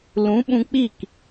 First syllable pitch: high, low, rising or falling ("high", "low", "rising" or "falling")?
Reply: rising